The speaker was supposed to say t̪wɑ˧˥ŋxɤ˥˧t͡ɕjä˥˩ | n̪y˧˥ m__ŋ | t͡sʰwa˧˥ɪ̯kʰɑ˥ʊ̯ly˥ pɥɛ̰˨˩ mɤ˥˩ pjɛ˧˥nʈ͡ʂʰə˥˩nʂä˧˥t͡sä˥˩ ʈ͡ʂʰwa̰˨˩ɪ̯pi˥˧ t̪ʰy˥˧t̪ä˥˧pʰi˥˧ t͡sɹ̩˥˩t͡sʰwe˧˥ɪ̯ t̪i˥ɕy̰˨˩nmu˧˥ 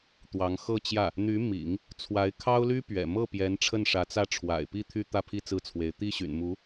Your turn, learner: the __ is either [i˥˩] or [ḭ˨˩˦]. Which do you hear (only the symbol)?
ḭ˨˩˦